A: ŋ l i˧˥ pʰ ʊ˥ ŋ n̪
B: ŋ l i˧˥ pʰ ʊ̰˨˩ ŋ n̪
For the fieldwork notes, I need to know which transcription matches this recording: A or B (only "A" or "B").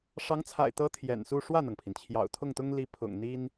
B